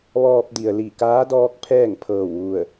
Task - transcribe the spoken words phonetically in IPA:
ʋ ɔː˧ p̚ d i˩ ə̯ l i˧˩ k aː˧˥ d ɔː˧˥ k̚ pʰ ɛː˥˨ ŋ pʰ ɤː˧˩ w ʋ u˧˩ ə̯

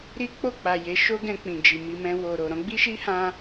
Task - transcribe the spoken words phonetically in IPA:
ɾ i˦ k͡p o˦˨ k͡p a˨ j e˨˦ ʃ o˦ ɡ ɛ̃˧ k͡p ĩ˨ d͡ʒ i˨ m i˧ m ɛ̃˧ w o˨ ɾ o˨ ɾ ɔ̃˨˦ ɡ͡b i˦ ʃ i˦ h ã˧

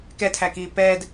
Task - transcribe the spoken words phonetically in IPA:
k ɛ tʰ æ k iː p ɛː d

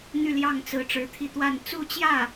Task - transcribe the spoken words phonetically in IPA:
n̪ y˥˧ l j ɑ˥˩ ŋ t͡s ɹ̩˧˥ ʈ͡ʂ ɻ̩˧˥ t̪ʰ i˥˧ t̪ w a˥˧ n t͡s u˥˧ t͡ɕ j ä˥˩

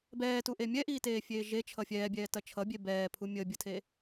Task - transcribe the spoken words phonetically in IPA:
b ɛː t u ʔ e mʲ ɛ ʔ iː t eː fʲ eː ʒ e t͡ʃʰ ʌ fʲ ɛː bʲ ɛː t ɐ t͡ʃʰ ʌ bʲ e b ɛː pʰ u mʲ əː bʲ ə tʰ e

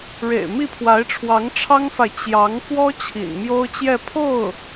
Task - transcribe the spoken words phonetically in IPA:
ɻ ḛ˨˩ ɪ̯ m i˥˩ pʰ w a˧˥ ɪ̯ ʈ͡ʂʰ w ɑ˧˥ ŋ ʈ͡ʂʰ ɑ˥ ŋ f a˨ ɪ̯ t͡ɕ j ɑ˧˥ ŋ f w ɔ˥ t͡ɕʰ ḭ˨˩ n m j o˥ ʊ̯ t͡ɕ j ɛ˥˧ pʰ o˥˩ ʊ̯

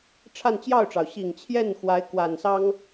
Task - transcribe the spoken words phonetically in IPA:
ʈ͡ʂʰ a˥˧ n t͡ɕ j ɑ˥˩ ʊ̯ ʈ͡ʂ ɑ˩ ʊ̯ ɕ i˨˩ ŋ t͡ɕʰ j ɛ˥˩ n x w a˧˥ ɪ̯ k w a˨˩ n s ɑ˥ ŋ

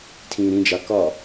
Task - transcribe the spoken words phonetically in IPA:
tʰ ĩː ɾ ĩ d͡ʒ ɑ k ɒ

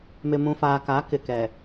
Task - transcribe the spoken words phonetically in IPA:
m ɪ˨ m ũ˨ f aː˨ k a˨˦ k ɪ˨ k ɛ˨

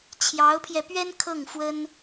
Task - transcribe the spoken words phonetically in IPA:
t͡ɕʰ j ɑ˧˥ ʊ̯ pʰ j ɛ˧ p ɥ ɛ˥ n kʰ ɤ˥˩ ŋ f w ə˥ n

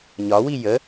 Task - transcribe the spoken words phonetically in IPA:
ɲ ɒ w i j ə

